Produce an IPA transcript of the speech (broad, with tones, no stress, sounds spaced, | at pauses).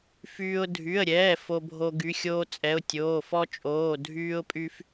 f yː˦ ʊ̯ dʱ y˩˧˩ ə̯ ɾʲ ɛː˩˧˩ f o˦ bʱ o˦ ɡ y˩˧˩ xʲ oː˦ t͡sʼ ɛ˩˧˩ ʊ̯ tʲ oː˩˧˩ f ɔ˦ t͡ʃʼ oː˩˧˩ dʱ yː˦ ʊ̯ pʼ y˦ f